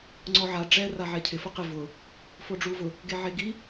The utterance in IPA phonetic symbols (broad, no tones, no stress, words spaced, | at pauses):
ŋ͡ǀɔʕa ɖ͡ʐɛ raʕɛcʰɪ fʊqɪ vʊ | foɖ͡ʐuvʊ | ɡeʕeɡi